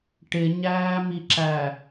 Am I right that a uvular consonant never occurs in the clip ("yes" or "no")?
yes